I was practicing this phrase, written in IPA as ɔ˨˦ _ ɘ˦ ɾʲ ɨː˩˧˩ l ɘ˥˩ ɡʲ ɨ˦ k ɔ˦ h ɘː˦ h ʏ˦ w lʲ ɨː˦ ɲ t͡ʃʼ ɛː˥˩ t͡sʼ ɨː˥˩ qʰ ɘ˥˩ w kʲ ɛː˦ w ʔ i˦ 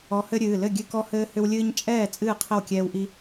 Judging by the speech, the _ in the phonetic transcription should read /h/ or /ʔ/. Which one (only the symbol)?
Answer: h